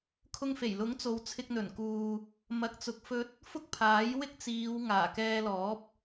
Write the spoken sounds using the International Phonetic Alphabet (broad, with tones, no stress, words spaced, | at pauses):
kʰʊ˧ŋfe˨˩jlʊ˨˥ŋ t͡so˨wt͡sʰɪ˧k̚n̪ɵ˨˩nkuː˨ | mɐ˨k̚t͡sʊ˨k̚ fɵ˧t̚ | fʊ˥k̚pʰaː˨˥j wɪ˥k̚t͡siː˨˧w ŋaː˨˩kɛː˧lɔː˨˥p̚